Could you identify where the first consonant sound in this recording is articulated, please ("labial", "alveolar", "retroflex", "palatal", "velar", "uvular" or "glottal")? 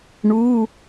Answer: retroflex